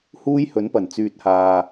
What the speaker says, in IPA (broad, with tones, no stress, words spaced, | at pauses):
huː˥j hɵ˨˥npɐ˨˩n t͡syː˨t̚haː˨